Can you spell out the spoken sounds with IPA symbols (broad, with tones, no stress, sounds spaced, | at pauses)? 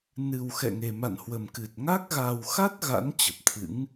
n ɨ˨˩ w x ɛ̰˧˨ ŋ e˨˩ m a̰˧˨ n h w ə˨˩ m k ɨ˨˩ t̚ ŋ a˦˥ k̚ ɣ a˨˩ w x a˦˥ t̚ ɣ a̰˧˥ n t͡ɕ ə˨˩ p̚ t̪ʰ ɨ̰˧˥ ŋ